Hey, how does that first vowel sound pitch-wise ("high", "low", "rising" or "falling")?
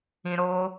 low